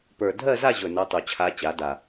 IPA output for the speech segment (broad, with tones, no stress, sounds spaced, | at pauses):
p ə˞˨˩ dʱ ɜ˥˧ z a˥˧ ʑ ɵ˨˩ n o˧˥ tˤ o˨˩ t͡ɕʰ a˧˥ t͡ɕ a˩˥ d a˨˩